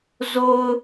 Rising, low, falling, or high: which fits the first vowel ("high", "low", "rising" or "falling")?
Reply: low